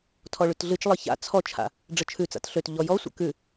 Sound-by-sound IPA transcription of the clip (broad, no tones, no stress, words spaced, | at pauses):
tʰɔɭʉtɮɨt͡ʃlˠɨ ça̰ t͡sʰɔt͡ʃʰa̰ | ɖ͡ʐət͡ʃʰʉt͡sa̰t ɬøt ʎɔjɔsʷə̰ kʉ